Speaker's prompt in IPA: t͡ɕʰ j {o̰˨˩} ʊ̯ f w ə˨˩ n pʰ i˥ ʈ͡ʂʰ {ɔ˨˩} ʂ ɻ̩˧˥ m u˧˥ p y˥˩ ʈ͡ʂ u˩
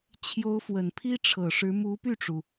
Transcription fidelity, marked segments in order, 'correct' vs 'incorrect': incorrect, incorrect

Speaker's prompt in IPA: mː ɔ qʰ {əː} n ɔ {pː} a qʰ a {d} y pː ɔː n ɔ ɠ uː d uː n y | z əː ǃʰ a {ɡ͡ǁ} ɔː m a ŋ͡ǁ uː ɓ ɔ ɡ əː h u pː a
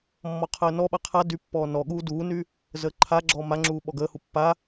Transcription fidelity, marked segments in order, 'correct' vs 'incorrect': correct, incorrect, correct, correct

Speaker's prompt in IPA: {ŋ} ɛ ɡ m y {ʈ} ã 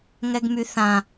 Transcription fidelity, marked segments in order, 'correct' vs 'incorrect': correct, incorrect

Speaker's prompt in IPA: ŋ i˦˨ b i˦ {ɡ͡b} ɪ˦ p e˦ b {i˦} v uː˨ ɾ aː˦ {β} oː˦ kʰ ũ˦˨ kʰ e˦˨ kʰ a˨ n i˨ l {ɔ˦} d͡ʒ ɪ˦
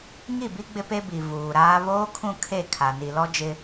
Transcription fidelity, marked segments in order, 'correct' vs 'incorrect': correct, incorrect, correct, correct

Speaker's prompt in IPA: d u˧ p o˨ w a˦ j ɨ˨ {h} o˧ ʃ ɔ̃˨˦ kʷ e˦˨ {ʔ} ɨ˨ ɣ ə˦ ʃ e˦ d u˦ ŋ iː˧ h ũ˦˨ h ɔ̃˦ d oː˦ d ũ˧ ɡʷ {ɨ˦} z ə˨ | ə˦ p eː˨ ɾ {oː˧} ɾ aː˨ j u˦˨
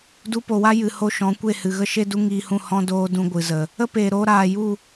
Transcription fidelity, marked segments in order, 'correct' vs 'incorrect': correct, incorrect, incorrect, correct

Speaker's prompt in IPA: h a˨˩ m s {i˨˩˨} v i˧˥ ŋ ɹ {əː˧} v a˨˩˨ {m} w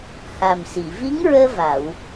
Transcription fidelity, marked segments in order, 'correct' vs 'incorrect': correct, correct, incorrect

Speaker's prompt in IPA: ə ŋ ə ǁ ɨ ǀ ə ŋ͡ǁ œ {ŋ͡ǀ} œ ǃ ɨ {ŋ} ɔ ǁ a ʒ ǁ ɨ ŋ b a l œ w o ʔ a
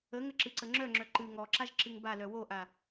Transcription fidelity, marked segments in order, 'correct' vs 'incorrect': incorrect, correct

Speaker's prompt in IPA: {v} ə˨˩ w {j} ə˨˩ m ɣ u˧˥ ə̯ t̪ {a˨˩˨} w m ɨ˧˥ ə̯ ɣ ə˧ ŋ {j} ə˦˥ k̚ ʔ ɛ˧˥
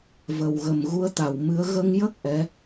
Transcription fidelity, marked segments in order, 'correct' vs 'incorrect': correct, incorrect, incorrect, correct

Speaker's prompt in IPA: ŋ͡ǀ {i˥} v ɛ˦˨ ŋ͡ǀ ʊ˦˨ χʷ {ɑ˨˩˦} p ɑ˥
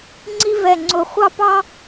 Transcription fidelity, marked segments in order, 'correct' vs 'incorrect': correct, incorrect

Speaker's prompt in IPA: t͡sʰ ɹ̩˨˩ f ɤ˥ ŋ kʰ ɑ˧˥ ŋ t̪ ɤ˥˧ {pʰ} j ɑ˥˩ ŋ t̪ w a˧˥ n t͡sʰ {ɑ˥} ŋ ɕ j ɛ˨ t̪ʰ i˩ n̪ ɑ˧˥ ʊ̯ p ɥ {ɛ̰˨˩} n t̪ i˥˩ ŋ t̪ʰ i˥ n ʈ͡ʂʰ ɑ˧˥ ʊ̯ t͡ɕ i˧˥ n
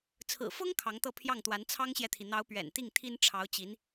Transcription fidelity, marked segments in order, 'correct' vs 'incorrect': correct, correct, correct

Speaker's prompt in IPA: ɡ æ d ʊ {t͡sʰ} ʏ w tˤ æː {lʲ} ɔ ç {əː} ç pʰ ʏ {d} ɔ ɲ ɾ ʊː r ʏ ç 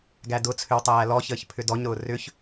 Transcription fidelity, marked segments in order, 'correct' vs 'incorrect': correct, incorrect, correct, correct

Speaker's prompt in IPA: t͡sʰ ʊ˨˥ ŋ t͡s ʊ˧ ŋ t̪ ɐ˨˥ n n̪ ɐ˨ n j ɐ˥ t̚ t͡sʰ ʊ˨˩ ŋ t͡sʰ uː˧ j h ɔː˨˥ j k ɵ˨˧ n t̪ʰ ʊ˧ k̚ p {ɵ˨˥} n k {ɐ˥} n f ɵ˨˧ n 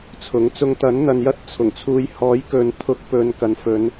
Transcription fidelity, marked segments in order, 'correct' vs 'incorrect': incorrect, incorrect

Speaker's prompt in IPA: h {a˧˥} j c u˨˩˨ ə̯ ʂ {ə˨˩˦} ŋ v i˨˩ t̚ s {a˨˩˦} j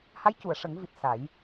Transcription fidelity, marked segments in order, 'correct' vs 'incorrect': correct, correct, correct

